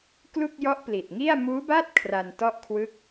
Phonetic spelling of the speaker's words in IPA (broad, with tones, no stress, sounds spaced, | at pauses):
k l u˥˩ k̚ j ɔ˦˥ ʔ p l i˨˩ t̚ ŋ i˥˩ a̯ m uː˦˥ b a˥˩ t̚ kʰ r a˧ n t ɔ˥˩ ʔ kʰ w ɯ˦˥ k̚